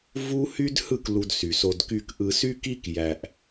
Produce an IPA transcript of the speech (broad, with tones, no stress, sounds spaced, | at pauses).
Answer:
v u˦ h y˦ d h ɯ˦˨ k l u˧ d s y˨ s o˧ d k y˧ k ʔ ɯ˧ s y˦ k i˦ k j æ˧ ʔ